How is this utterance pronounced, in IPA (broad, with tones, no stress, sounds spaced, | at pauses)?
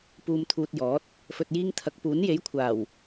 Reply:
p uː˧ m t̪ʰ uː˧ t̚ j ɔː˨˥ t̚ | f ɵ˨ t̚ j iː˧ ŋ t̪ʰ ɐ˨˥ k̚ p uː˨˥ n j e˨˥ j kʷʰ aː˨˩ w